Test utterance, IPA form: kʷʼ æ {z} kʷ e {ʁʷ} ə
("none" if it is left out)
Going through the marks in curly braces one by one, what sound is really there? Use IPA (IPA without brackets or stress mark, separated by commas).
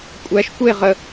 ʃ, ʁ